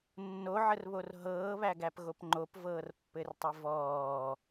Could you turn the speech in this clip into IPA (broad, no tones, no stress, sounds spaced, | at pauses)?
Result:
nː o ʕ ə r β o r ɦ ɤː β æ ɡ æ p ɣ o p ŋ͡ǃ o p v ɤː r pː ɘ r tˤ ɘ v ɔː